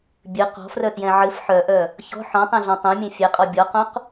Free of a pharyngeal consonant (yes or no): no